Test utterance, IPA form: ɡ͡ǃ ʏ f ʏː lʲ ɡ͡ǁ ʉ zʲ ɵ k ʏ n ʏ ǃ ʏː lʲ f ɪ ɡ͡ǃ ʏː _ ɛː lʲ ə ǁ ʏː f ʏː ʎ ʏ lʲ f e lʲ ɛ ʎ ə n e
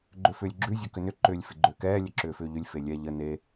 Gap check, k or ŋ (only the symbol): k